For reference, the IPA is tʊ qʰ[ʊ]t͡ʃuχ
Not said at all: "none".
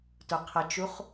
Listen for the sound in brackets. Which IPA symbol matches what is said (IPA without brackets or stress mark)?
ə